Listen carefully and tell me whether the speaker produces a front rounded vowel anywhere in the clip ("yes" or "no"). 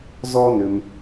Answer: yes